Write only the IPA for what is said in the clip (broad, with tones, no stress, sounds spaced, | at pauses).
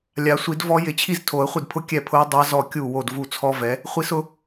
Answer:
lʲ a˨˩˦ sʷ i˨˩˦ d v ɔ˦˥ j ɪ˨˩˦ t͡ɕʰ i˥˩ z tʰ o˨˩˦ ə̯ χʷ ɪ˥˩ d pʰ ʊ˦˥ kʲ ɛ˥˩ pʰ ʊ˦˥ ə̯ dˤ a˦˥ z ɔ˥˩ kʲ u˥˩ w o˥˩ d v u˥˩ t͡sʰ ɔ˦˥ v ɛ˩˥ | χʷ i˦˥ s ʊ˦˥